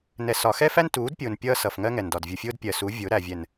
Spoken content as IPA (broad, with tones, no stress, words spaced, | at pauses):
nɛ˨sɒ˨xɛ˦fæ˦n tuː˨˦dpʲʊː˨n pʲʌː˦sʌ˨fŋɜ˦ ŋɛ˨ndɒ˨dvʲu˨fʲʊː˦d pʲɜ˨su˨˦ vʲʊː˨˦ɾæ˨vʲɛ˨n